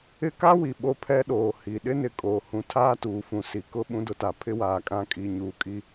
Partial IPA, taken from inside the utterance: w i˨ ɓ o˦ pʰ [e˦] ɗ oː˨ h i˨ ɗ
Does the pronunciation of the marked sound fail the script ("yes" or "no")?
yes